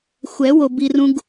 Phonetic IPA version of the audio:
xʷ ɛ˨˦ w o˨ b i˨ r ũ˨ ɡ

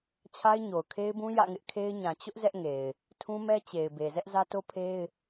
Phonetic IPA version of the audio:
t͡ɕʰ a˦ ɪ̯ ɲ o˨ ʊ̯ kʰ e˦ ɪ̯ b ũ˦ j ä̰˦˨ ŋ ɪ˦ ʔ kʰ e˦ ɪ̯ ɲ ã˨ t͡ɕ ʊ˦ ʔ z ɛ˦ ʔ ŋ e˨ ɪ̯ | tʰ ũ˦ m ɛ˦ t͡ɕ e˨ ɪ̯ b e˨ z ɛ˦ ʔ z ä˦ t o˦ pʰ e˦ ɪ̯

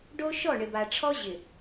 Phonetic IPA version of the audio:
ɖ o˦ ʃ ɔ˦˨ ɳ ɪ˨ b a˨ ʈ͡ʂʰ ɔ˦ ʑ ɪ˨

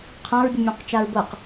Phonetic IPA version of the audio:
qʰ ã ɹ bʲ ɯ mʲ õ q t͡ʃ a ɹ b ɤ q

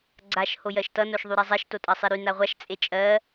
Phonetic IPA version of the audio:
ɡ͡ǀ a ʃ h o j ɜ ʃ t ʌ n o ʃ ðˤ y ɾ ɛ zˤ ɛ ʃ t o tʼ ɜ sˤ i ɾ y n a ʁʷ a ʃ t͡sʼ e t͡ʃʼ ɜ

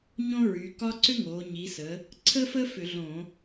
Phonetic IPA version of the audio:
ɲ õ˦ ɹ y˩˧ k ɒ˦ ǀ ʏ˦ ŋ oː˩˧ ɲ i˩˧ s ə˩˧ | ǀʰ ə˦ f ə˦ f ʏ˧˩˧ ɮ õ˧˩˧

